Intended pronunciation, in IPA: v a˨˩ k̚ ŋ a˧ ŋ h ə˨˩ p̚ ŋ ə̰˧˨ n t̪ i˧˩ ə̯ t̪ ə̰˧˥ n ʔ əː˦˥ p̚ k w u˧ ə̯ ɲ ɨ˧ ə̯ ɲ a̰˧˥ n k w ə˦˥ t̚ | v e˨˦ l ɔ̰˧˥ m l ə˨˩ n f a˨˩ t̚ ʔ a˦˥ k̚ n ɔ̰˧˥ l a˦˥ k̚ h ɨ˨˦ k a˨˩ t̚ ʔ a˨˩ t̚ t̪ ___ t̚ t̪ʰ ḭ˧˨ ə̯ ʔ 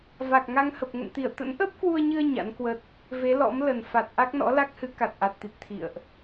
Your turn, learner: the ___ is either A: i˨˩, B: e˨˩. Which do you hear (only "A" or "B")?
A